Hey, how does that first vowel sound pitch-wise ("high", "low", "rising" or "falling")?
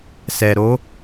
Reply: low